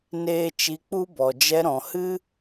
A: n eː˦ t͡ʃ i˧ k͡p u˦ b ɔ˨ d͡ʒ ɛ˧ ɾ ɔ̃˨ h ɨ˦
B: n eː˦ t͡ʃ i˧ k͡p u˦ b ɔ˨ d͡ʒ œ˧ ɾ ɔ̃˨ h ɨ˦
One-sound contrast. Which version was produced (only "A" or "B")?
A